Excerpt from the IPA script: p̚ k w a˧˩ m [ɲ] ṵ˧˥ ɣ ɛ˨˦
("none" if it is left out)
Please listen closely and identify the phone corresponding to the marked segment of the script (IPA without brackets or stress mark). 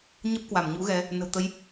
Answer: ɲ